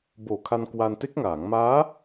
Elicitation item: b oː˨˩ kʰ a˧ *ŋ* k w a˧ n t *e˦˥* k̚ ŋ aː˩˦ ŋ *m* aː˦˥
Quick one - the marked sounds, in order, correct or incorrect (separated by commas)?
incorrect, correct, correct